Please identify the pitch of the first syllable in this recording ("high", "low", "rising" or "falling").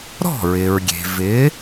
falling